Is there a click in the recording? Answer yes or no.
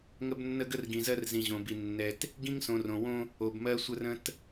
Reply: no